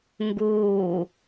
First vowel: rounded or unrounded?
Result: rounded